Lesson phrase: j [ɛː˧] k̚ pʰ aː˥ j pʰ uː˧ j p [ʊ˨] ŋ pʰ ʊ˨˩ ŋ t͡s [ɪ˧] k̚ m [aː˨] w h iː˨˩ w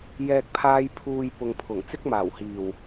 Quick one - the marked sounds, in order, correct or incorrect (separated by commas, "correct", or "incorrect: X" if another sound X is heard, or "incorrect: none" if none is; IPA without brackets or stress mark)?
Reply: incorrect: ɛː˥, correct, incorrect: ɪ˥, incorrect: aː˨˩